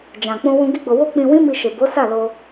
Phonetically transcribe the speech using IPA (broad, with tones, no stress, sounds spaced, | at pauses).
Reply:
d͡ʒ ã˨ k͡p ũ˧ w ũ˧ ɡ i˦ ɡ͡b o˧ w o˦ k͡p ĩ˧ w ĩ˦ m i˧ ʃ e˨ b o˨˦ s a˦˨ l o˧